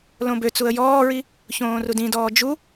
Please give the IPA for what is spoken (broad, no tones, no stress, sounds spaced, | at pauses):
l õ b ø t͡s u ə̯ j ɔː ɹ i | ç õː r u d ĩ d ɔː d͡ʒ u